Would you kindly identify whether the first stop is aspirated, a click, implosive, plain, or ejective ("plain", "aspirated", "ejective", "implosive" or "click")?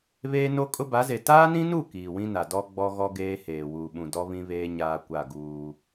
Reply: ejective